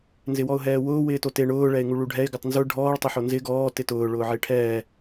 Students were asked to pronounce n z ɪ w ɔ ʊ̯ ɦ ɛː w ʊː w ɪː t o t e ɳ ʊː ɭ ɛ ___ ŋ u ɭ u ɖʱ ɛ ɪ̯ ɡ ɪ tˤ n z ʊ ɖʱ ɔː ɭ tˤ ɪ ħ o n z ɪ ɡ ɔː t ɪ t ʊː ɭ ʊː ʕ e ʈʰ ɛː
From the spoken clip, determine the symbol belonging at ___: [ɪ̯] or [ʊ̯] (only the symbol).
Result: ɪ̯